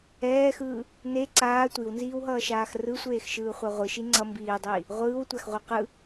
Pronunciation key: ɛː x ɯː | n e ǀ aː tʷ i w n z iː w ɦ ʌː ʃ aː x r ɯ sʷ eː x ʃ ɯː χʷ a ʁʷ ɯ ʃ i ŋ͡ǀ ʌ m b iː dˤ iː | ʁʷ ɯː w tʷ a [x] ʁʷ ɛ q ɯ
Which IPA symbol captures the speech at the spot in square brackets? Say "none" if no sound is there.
x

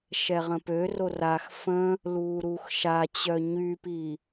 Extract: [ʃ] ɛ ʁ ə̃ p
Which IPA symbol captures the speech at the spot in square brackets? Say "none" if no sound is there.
ʃ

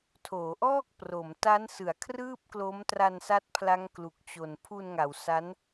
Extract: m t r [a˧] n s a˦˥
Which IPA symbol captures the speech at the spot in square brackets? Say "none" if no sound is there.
a˧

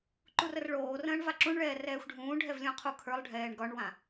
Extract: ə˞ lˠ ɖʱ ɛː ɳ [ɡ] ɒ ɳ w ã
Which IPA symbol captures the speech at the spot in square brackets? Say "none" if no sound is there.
ɡ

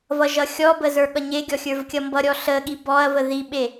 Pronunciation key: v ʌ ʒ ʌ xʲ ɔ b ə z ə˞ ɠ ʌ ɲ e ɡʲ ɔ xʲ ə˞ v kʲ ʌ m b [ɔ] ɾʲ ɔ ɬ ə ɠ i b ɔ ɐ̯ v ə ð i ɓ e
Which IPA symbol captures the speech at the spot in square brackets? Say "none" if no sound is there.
ʌ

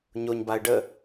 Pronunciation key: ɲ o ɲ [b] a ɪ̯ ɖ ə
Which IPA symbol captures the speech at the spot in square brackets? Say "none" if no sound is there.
b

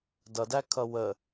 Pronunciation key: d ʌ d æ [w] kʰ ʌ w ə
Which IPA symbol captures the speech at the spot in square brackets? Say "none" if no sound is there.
none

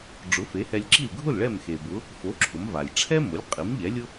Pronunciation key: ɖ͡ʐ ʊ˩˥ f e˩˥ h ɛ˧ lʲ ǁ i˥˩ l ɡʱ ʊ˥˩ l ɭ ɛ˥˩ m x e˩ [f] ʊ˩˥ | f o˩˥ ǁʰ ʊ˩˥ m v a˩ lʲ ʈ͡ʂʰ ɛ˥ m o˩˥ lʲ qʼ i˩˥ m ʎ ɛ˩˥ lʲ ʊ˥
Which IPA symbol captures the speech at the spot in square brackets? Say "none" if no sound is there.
b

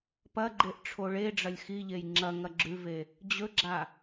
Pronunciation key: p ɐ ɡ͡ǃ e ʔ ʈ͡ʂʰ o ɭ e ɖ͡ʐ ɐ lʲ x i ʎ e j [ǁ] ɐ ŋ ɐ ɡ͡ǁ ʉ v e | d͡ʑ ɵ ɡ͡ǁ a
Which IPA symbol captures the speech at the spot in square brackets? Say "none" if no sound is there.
ŋ͡ǁ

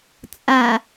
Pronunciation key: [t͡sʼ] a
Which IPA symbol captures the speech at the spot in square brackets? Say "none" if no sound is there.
t͡sʼ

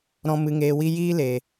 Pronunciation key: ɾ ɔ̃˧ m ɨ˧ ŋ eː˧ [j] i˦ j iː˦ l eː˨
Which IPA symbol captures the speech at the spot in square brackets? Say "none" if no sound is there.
w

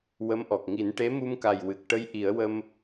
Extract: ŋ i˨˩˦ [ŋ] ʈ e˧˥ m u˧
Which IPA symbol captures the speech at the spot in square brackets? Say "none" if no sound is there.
n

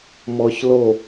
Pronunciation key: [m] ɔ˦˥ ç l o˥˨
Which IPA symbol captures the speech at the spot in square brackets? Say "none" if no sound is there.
m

